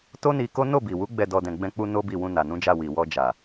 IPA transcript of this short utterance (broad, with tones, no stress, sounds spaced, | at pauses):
t o˦ n i˧ k o˦ n o˦˨ b i˨ w u˨˦ ɡ͡b ɛ˦˨ d ɔ˧ d ɛ̃˨ ɡ͡b ɛ̃˧ k͡p u˧ n o˦ b i˦˨ w ũ˧ n a˨ n ũ˨˦ d͡ʒ a˦˨ w i˨ w ɔ˧ d͡ʒ a˨